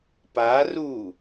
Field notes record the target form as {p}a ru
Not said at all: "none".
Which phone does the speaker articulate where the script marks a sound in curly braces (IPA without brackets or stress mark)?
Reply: p